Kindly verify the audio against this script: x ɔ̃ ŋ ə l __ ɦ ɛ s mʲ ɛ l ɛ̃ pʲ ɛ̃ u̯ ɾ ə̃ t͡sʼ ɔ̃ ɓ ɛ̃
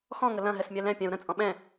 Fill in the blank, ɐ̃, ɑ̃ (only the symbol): ɐ̃